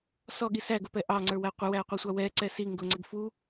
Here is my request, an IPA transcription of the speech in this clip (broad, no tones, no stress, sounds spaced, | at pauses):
s ɔ ɠ i s æ ɡ ʊ p ɛ ʔ ɑ ŋ͡ǀ ə˞ w æ qʷ ɪ w æ ɐ̯ qʷ ɑ sʷ ɑ w ɛ ǀ ɛ s i ŋ ɡ ʊ ŋ͡ǀ ɛ ɡ f u